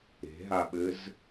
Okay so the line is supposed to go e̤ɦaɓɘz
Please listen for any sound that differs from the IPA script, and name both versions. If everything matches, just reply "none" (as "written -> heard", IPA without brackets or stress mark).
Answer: none